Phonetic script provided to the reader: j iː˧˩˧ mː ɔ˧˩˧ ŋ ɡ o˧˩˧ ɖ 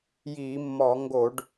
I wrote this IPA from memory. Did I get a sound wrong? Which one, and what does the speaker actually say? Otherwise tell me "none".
none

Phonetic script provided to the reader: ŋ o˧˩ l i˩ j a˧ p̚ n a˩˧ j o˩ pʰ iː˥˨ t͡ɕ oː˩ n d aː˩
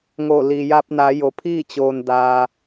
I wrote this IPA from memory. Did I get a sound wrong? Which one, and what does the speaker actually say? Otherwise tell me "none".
none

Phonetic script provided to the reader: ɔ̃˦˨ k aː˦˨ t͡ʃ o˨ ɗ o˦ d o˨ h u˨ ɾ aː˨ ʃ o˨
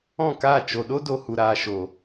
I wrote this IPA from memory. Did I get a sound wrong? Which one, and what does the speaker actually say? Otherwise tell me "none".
none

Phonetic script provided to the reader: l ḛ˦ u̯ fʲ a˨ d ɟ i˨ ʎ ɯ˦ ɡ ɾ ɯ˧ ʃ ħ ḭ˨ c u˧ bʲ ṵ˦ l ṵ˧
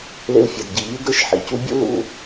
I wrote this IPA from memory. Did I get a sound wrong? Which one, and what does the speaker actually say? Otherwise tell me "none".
none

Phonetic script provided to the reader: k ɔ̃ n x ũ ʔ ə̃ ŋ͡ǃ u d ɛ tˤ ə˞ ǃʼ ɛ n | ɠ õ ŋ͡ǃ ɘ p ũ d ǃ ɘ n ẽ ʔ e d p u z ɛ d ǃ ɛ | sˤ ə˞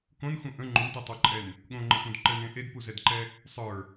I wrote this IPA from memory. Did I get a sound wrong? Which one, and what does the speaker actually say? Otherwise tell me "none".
ɔ̃ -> õ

